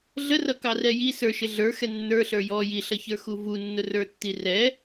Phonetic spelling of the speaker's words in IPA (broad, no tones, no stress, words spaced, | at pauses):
ɮərʌkɑrɛ ji sə˞ʃɪ ɮə˞xɛ nːə˞ɬə˞ jɔ jiɬʌçə˞xu vunːʊrə˞tːi rɛ